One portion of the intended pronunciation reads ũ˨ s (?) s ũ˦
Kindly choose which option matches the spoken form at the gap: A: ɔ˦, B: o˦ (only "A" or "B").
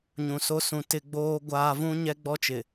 B